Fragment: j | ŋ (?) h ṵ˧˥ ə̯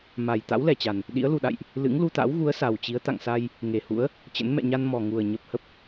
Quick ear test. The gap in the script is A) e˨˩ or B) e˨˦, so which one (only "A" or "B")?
A